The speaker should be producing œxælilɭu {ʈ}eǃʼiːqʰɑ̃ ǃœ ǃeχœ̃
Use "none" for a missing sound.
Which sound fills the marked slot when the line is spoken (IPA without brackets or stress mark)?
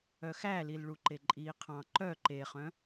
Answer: ǃ